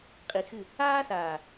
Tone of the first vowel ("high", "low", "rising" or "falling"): low